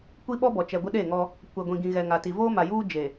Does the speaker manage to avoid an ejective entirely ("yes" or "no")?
yes